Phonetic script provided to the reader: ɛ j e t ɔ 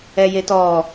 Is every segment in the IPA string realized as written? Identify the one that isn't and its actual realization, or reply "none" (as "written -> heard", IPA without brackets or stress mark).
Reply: none